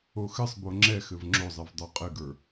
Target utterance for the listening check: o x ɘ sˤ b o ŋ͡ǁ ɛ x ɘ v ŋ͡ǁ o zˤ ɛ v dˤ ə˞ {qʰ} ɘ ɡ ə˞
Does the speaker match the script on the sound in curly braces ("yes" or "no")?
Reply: no